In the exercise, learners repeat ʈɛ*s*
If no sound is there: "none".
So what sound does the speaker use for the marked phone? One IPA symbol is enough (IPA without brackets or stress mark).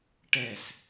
s